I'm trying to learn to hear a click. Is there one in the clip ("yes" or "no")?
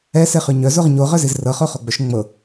no